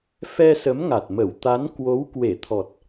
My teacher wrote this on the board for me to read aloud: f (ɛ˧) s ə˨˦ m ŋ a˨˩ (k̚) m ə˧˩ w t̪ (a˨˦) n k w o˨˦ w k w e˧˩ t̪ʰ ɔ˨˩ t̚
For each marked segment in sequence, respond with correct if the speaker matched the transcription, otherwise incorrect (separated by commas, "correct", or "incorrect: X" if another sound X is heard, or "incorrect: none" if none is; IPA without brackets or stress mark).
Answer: correct, incorrect: t̚, correct